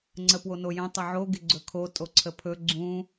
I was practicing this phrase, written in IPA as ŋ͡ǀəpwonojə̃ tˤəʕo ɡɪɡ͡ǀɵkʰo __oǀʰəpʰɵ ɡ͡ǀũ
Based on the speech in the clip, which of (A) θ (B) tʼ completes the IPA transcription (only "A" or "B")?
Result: B